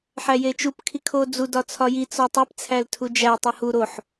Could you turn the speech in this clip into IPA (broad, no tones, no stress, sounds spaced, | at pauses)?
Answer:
ħ æ j e t͡ʃ u p kʰ i kʰ o d͡z u d ɒ t͡sʰ ɒ j i t͡s ɒ tˤ e p t͡sʰ æ l tʰ u d͡ʒ æ tˤ o h u ɾ o ħ